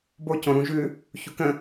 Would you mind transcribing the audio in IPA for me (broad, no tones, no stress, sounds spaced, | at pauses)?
b o c õ ɾ ũ ʒ ʉ | ç u k ə̃